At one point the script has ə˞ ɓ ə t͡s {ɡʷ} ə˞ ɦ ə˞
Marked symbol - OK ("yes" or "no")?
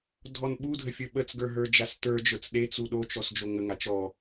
no